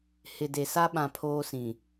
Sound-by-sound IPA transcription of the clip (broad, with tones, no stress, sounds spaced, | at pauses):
h ɪ˨ d e˨ s a˦ ɓ ã˨ pʰ oː˦ s ĩ˨